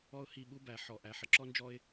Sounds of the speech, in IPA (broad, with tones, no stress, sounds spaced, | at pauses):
ɔ˦ ʊ̯ h i˦˨ ɓ u˦ b æ˨ ħ ɔ˨ ʔ æ˨ ħ ə˨ ǁ ɔ˦ n d͡ʒ ɔ˦ ɪ̯